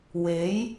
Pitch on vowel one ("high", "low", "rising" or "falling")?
rising